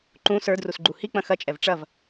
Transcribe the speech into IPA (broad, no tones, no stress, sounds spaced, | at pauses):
ǃ ũ s ə˞ d r u s ɡ͡ǃ u h i k͡p ɐ̃ x ɐ t͡ʃʼ ɛ v ʈ͡ʂ ɐ v